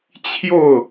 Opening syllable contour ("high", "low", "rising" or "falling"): falling